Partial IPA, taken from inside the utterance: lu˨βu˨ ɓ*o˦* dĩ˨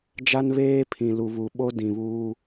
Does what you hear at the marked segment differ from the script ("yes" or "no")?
no